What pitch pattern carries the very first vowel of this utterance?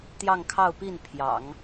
falling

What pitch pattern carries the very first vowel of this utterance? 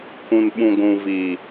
low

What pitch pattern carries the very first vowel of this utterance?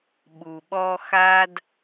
low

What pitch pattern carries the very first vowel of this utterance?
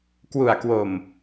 low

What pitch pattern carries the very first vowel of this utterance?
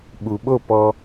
low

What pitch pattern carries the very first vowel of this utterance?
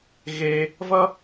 high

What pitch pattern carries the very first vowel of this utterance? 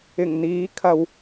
low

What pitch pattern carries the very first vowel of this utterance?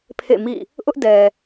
falling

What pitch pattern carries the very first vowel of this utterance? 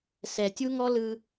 low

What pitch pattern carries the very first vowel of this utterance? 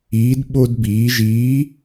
rising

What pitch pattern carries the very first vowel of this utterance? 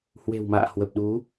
low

